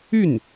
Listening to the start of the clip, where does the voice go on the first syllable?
falling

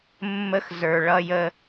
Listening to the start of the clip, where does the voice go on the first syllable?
high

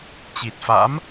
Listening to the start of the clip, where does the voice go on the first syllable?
low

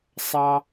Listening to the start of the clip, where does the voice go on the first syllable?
low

